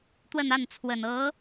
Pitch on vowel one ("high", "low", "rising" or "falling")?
falling